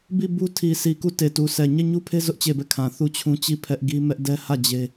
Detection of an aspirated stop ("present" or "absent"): present